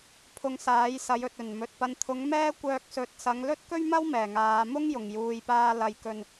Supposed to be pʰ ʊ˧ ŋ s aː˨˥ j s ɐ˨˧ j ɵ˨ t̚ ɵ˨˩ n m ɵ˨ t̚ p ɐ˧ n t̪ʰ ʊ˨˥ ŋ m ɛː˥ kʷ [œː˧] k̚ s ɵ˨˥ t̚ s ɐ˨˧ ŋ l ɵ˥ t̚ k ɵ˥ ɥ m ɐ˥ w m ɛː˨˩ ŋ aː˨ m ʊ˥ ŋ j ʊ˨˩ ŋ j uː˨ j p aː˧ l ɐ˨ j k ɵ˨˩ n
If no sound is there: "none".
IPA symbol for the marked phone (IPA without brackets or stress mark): œː˧